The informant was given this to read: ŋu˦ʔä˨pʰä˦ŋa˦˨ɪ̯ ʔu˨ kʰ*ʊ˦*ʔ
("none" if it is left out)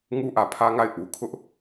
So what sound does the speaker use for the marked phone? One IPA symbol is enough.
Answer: ʊ˦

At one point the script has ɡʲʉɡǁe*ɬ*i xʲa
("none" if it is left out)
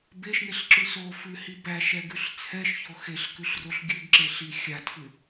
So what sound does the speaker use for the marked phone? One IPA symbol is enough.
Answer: ɬ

